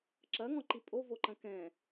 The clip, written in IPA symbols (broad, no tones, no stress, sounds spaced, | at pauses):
ǁ ɐ ŋ ɔ̃ ǃ i pʼ o v o ǃ ɐ̃ k ɛ̃